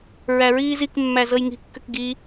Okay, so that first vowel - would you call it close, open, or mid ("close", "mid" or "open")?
open